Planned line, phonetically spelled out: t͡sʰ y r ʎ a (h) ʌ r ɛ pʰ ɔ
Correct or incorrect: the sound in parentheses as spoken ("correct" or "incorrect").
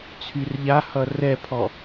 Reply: correct